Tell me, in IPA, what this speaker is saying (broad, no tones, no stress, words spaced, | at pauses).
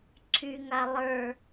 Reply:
ǀʰyŋa lˠə˞